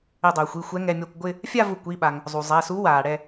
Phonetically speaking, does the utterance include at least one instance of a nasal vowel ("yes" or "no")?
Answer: no